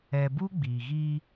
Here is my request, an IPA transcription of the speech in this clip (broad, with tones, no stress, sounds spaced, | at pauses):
ɛ˨ b u˦ ɡ͡b iː˨ ɣ iː˦